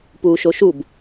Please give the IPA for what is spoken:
p uː ʃ o ʃ u b

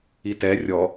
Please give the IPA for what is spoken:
i t ɛ rʲ ɔ

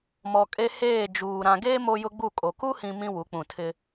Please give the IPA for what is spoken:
m ɔ˨ kʼ e˦ h eː˦˨ d͡ʒ uː˨ ɾ ã˨ ɡ eː˦ m o˦ j ʊ˦ ɡ͡b u˦˨ kʼ o˨ k u˦ h ĩ˨ m ĩ˦ w u˨˦ k͡p ũ˨ tʰ ɪ˦

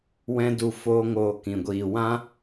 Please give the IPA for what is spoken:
w ɛ̃˦ d u˧ f oː˦ ŋ oː˧ k ĩ˨ ɡʷ iː˨ w ã˦

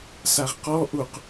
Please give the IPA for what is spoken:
s a ʁ q ɔ ʔ u q

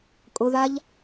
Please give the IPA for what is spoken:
kʼ ʊ ð a ʎ

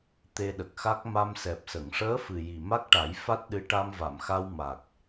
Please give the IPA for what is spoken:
t̪ e˧ ɗ ə˨˩ k̚ x a˦˥ k̚ m a˧ m s ɛ˨˩ p̚ s ə˨˩˨ ŋ ʂ əː˧˥ f ɨ˨˩ j i˨˩ m a˦˥ k̚ ʈ a˨˩˦ j f a˦˥ t̚ ɗ ɨ˧˥ ʈ a˧ m v a˨˩˨ m x a˧ w m a˨˩ k̚

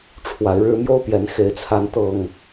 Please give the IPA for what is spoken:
ʈ͡ʂʰ w a˨˦ ɪ̯ ɻ ɻ̩˦ m j o˦ ʊ̯ p j ɛ˨˦ n x e˨˦ ɪ̯ t͡sʰ a˨˦ n t̪ ɤ˨˩ ŋ

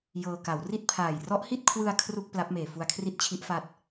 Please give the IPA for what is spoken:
j ɤː˧ k a˩˦ w r i˥˩ t̚ pʰ aː˨˩ j r ɔ˦˥ ʔ h i˥˩ t̚ kʰ w ɯ˧ a̯ kʰ r u˥˩ k̚ p l a˦˥ p̚ m eː˨˩ f u˧ a̯ kʰ r i˥˩ t̚ t͡ɕʰ i˦˥ ʔ f a˦˥ t̚

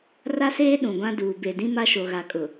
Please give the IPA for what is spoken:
r a˦ s eː˦ ɗ ũ˨ ɡʷ ã˦ d uː˨ b e˨ d ĩ˦ m a˦ ʃ o˨ ɣ a˨ kʼ ʊ˨

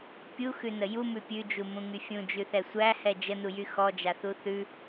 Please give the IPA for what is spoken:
pʲ u x ʉ n ə j u m ʉ pʲ ʉ d͡ʒ u m ũ ŋ y fʲ ũ d͡ʒ ʉ θ ɛ sʷ æ h ɛ d͡ʒ ə n u j y x ɔ d͡ʒ a θ u θ ʉ

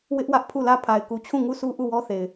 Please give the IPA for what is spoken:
w ɪ˦ ʔ w ä˦ ʔ pʰ u˦˨ l ä˦˨ pʰ a˨ ɪ̯ k u˨ t͡ɕʰ ũ˦˨ ŋ u˦˨ sʰ u˦ ʔ u˦˨ w ɔ˦ θ e˨ ɪ̯

